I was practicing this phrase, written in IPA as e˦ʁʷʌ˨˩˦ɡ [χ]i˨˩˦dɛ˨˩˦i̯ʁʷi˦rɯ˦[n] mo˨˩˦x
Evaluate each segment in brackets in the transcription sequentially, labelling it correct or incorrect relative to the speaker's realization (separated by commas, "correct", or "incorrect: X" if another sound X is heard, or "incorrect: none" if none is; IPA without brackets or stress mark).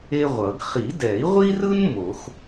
correct, correct